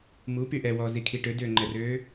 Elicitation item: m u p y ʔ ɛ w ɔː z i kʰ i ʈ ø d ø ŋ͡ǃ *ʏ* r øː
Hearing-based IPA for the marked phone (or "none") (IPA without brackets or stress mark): ɛ